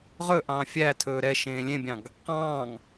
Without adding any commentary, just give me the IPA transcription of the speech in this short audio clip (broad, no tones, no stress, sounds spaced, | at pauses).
ʁ ɵ ʔ ɑ̃ fʲ æ tʰ ɵː ɾ ɛ ʃ ẽː lʲ ẽ bʲ ɑ̃ ɡ | q ɑ̃ː ŋ